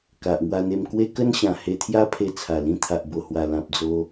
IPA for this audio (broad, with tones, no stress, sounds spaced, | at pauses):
k a˨ ʔ ŋ w a˧ n̪ e˧ m k w e˦ k ə˦ n ɕ ã˨˩ h e˧ t̪ʰ j a˦ pʰ e˧ t͡sʰ a˨˩ l ĩ˧ t̪ʰ a˨ ʔ b o˨˩ h w a˨˩ l ã˨ p̚ d͡z o˧